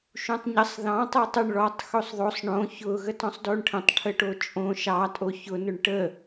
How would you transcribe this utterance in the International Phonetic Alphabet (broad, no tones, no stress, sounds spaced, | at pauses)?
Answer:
ʃ ũ tˤ ɲ ə sˤ ð ɑ̃ tˤ o tˤ ʊ ɳ ɭ ɔ tˤ x o sˤ ðˤ o sˤ ɳ õ ç ʊ ɣ ə t ɔ̃ sˤ d o ɳ ʈʰ ə̃ tˤ ʈʰ ə ʈ o t͡ʃʼ õ ʃ ɑ tʼ o ç ʊ n ʊ ɳ ʈ ə